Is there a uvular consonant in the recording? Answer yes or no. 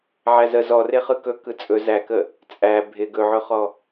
yes